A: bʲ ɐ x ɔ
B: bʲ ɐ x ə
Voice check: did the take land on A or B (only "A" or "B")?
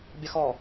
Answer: A